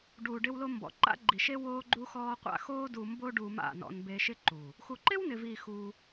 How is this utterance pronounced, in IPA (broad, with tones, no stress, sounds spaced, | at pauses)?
ɖ uː˨ ɖ ɪ˧ w l o˧ m b ɔ̰˨ ǃ a̰˦ ɡ͡ǃ i˨ ʃ e˦ w oː˧ ɡ͡ǃ u˧ x ɔː˧ qʷ a̰˦˨ x oː˧ d u˨ m b o˧ ɖ uː˧ m a̰˦˨ n ɔ̰˧ n b e˧ ʃ ɪ˦ ǃ uː˨ | x u˨ ǃ e˦ w n ɪ˨ v iː˨ x uː˧